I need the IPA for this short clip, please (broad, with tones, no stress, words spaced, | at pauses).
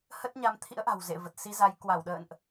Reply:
hə˦˥t̚ɲa˧m t̪ʰḭ˧˥ə̯ʔa̤˨˩w zḛ˧˨və˨˩t̚si˧za˨˦j kwa˧˩wɗə̰ː˧˨nʔ